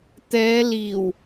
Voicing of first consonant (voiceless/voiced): voiceless